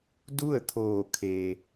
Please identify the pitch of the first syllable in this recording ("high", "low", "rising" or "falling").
falling